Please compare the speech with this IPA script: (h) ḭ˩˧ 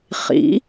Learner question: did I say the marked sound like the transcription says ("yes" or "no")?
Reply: no